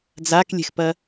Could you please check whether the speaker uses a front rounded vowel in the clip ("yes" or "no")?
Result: no